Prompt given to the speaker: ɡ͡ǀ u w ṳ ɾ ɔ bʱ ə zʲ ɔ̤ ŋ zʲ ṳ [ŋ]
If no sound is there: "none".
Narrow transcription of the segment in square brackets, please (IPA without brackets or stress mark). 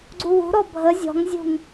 ŋ